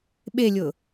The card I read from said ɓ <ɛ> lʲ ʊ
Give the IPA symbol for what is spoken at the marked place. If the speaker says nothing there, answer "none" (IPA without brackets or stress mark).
e